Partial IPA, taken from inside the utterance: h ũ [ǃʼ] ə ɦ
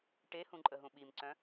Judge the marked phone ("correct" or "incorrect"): correct